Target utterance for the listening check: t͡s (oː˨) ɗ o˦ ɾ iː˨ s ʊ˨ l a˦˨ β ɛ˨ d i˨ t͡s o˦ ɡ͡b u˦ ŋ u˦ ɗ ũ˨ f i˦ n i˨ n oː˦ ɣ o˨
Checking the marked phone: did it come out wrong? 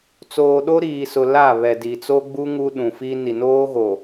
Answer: no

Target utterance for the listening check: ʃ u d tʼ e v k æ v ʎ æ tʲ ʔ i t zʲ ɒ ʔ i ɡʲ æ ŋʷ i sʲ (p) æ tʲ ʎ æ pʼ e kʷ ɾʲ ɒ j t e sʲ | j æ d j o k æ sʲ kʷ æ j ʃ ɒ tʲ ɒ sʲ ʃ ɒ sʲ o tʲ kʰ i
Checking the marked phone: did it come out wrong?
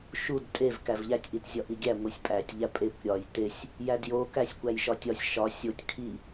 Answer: yes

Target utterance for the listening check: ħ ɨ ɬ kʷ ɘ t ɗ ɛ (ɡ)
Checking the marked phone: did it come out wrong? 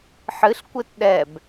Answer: yes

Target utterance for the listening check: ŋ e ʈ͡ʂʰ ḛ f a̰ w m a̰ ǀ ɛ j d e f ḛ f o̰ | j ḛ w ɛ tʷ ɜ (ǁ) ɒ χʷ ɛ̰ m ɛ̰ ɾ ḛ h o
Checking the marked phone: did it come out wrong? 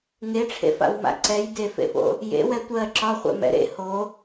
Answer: no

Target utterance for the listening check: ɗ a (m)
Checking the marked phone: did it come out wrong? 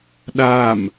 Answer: no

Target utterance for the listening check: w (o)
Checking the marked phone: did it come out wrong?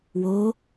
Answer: no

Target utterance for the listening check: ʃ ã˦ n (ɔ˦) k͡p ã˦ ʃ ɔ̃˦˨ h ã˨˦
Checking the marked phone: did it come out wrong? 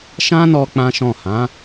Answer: yes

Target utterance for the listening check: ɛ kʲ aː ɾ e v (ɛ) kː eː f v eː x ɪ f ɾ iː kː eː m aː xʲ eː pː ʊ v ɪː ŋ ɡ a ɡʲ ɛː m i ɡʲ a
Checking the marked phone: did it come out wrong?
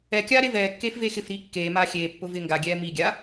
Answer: yes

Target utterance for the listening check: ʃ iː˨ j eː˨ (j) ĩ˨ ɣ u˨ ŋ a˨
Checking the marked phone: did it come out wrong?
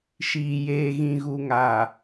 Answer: yes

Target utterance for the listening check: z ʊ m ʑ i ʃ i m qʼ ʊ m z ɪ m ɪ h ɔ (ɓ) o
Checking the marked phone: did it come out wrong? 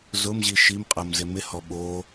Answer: no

